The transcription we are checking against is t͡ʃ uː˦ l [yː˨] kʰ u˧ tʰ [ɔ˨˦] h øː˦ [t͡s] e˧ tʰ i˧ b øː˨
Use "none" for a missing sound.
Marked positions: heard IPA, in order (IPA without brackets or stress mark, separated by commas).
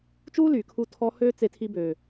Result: yː˨, ɔ˦, t͡s